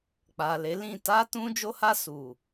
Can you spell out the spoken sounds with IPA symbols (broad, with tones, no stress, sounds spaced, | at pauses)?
k͡p a˨ l e˨˦ l ĩ˦˨ t a˧ t ũ˧ d͡ʒ o˧ h a˧ s u˨